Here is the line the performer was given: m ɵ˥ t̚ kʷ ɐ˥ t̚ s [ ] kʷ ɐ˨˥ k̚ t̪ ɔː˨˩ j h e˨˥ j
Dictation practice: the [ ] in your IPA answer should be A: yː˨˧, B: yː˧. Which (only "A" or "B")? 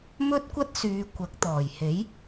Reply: A